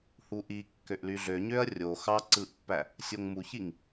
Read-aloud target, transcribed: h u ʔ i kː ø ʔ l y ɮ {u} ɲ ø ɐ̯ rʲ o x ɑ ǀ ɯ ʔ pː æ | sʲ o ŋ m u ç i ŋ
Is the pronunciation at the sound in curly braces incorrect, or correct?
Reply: incorrect